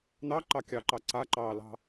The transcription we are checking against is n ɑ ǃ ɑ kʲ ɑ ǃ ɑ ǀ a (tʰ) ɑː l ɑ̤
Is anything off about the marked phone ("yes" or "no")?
yes